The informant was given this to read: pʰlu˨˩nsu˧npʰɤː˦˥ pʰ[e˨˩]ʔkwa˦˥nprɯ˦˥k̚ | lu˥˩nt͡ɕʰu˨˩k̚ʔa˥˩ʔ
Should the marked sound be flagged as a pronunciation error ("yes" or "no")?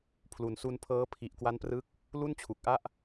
yes